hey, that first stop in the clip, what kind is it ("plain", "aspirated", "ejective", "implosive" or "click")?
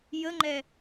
click